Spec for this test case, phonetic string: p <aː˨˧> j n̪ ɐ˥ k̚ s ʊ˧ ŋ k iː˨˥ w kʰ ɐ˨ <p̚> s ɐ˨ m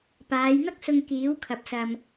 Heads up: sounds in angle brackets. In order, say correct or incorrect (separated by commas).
correct, correct